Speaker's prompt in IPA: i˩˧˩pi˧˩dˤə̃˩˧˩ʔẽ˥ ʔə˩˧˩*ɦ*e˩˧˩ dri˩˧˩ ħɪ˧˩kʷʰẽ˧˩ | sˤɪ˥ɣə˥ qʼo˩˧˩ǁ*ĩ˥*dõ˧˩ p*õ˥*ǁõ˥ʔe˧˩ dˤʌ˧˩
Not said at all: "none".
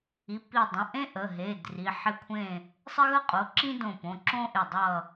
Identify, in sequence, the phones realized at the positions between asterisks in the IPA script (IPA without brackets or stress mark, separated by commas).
ɦ, ĩ˥, õ˩˧˩